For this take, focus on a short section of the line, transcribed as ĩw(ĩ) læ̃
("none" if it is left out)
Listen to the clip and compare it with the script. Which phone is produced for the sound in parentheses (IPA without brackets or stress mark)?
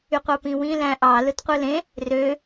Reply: ĩ